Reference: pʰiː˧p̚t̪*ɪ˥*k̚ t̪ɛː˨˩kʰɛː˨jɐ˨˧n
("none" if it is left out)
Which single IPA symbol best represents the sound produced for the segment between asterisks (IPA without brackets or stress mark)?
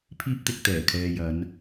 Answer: ɪ˨